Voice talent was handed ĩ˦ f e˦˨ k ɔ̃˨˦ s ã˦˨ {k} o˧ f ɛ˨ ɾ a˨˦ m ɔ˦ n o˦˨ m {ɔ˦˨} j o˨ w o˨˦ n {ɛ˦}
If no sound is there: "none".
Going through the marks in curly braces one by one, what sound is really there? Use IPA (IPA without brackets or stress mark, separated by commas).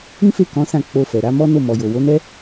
k͡p, ɔ˨, ɛ˦